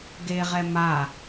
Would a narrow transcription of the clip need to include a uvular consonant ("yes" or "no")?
yes